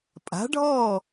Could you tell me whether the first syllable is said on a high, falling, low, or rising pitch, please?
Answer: rising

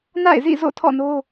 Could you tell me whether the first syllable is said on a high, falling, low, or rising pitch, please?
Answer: falling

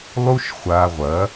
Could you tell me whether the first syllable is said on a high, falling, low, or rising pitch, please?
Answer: high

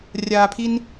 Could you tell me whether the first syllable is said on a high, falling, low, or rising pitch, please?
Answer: low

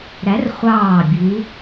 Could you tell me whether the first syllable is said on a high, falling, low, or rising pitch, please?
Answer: rising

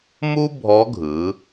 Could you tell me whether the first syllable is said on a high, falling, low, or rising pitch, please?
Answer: high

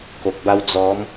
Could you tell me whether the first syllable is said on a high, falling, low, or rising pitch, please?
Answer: low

